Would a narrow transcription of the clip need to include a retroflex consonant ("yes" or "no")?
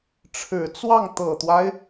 yes